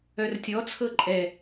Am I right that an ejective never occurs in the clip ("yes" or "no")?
no